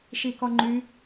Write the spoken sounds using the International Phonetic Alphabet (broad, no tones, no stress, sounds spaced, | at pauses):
ʃ i k ɔ ŋ͡ǃ y